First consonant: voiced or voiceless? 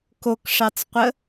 voiceless